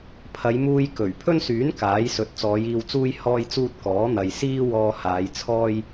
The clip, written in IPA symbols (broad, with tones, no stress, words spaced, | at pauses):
pʰɐ˨˧jmuː˧j kɵ˨˩ɥ pʰɵ˥nsyː˨˥n kaː˨˥jsɵ˨t̚ t͡sɔː˨˧jiː˧wt͡suː˥j hɔː˥jt͡suː˥t̚ kɔː˨˥n̪ɐ˨j siː˥wɔː˧ haː˨˧jt͡sʰɔː˥j